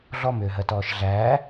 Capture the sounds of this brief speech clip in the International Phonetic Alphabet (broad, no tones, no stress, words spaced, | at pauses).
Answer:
ɮɔmʏːɦɜtɔːʃ ɮæː